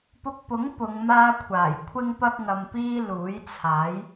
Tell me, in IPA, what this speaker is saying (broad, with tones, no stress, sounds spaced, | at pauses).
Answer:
p ʊ˧ k̚ p ʊ˨˥ ŋ p ʊ˨˧ ŋ m aː˥ kʷʰ aː˨˩ j kʷʰ ɪ˥ ŋ p ɐ˥ k̚ ŋ ɐ˧ m p iː˥ l uː˨˥ j t͡sʰ aː˨˥ j